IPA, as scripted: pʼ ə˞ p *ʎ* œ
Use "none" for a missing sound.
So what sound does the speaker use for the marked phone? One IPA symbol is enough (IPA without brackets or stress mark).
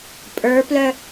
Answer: l